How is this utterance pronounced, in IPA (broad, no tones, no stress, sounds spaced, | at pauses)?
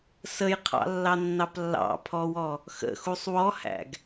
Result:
s ə j qʰ ɑ̰ lː ɑ nː ɑ p lː ɑ̰ pʰ ɔ w ɔ | x ə̰ x u sˤ w ɔ h æ̰ ɡ